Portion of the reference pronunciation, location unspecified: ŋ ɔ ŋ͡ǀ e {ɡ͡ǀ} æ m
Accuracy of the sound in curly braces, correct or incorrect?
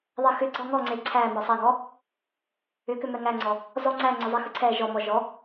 incorrect: ǀʰ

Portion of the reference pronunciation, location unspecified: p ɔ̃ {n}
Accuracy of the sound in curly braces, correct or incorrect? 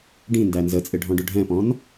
correct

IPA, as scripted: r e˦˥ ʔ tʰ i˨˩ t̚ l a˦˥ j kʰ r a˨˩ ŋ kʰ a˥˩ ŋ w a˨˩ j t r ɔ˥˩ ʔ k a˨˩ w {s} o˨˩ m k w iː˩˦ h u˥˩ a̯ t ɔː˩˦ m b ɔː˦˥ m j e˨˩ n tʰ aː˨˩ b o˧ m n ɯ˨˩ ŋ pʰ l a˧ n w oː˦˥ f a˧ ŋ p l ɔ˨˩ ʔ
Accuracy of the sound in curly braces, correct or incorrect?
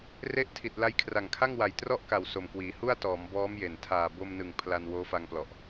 correct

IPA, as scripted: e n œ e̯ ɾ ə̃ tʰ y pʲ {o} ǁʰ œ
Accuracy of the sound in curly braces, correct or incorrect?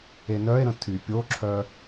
correct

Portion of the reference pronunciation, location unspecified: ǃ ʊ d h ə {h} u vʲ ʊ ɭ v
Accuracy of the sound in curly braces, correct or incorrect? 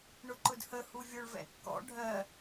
correct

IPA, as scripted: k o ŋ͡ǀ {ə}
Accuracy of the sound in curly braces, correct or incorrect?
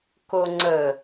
correct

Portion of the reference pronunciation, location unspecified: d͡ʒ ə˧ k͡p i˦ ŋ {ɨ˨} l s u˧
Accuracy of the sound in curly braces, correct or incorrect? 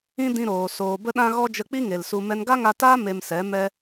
incorrect: e˨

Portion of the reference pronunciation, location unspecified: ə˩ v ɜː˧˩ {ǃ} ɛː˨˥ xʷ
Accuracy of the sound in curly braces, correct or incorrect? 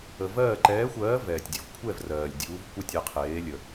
correct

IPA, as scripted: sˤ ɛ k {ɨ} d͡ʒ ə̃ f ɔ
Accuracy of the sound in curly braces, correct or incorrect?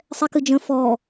correct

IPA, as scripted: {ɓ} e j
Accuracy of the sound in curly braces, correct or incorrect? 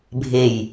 incorrect: bʱ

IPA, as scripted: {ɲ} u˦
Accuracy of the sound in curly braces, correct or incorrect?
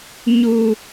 correct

